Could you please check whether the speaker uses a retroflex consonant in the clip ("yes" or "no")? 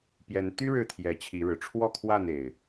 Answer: yes